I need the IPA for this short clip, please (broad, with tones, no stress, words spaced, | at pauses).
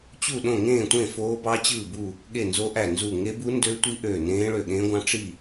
t͡ɕu˦˨ɗõ˦˨ ŋẽː˦˨tʷẽ˦˨ foː˦˥bɑ˦˥ t͡ɕɯː˦˨bu˦˨ | ɠe˦˨ nzo˦˥ʔæ˦˨nzu˦˨ ŋe˦˥bu˦˥ndø˦˥tʷi˦˥ ʔøː˦˨nẽː˦˥ɭø˦˨ ɠẽː˦˥ɡʷɑ̃˦˥ ʈ͡ʂi˦˨